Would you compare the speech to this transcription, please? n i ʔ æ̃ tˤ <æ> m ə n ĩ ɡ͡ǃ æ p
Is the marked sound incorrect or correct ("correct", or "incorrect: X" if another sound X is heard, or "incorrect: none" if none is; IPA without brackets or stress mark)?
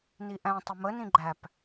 incorrect: ə